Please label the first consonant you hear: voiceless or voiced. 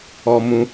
voiced